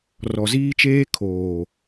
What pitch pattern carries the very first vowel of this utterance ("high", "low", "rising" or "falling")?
low